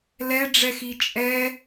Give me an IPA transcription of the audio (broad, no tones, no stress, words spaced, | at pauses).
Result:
lɛɖ͡ʐɛxi t͡ʃʼɛ